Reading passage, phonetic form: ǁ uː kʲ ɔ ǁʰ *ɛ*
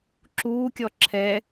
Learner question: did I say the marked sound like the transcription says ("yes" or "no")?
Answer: yes